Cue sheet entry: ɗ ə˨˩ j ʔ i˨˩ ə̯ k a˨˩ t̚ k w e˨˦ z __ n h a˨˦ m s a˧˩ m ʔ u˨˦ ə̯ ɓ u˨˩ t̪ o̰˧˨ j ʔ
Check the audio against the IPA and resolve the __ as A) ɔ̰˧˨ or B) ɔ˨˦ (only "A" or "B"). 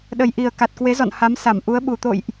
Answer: A